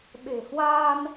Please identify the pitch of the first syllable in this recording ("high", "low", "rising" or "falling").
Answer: low